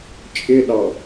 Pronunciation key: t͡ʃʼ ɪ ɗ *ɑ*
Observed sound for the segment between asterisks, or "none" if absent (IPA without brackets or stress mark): ɑ